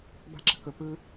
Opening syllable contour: high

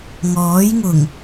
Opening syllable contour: rising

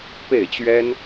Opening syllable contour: falling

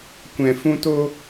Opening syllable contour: low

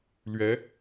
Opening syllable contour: rising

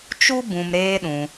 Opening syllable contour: high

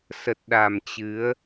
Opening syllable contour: low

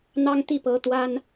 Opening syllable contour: high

